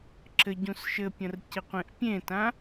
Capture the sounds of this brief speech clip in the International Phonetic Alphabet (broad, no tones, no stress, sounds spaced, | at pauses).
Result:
ǁ ɘ ɟ ũ s ʃ ɘ pʲ ɐ̃ r c ɪ qʷ ẽ ʔ pʲ ẽ t ã